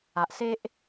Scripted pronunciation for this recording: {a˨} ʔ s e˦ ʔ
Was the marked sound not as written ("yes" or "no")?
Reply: no